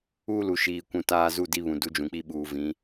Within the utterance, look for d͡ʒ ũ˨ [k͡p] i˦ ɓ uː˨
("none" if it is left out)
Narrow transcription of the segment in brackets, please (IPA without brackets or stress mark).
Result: k͡p